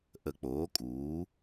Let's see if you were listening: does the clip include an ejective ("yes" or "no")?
yes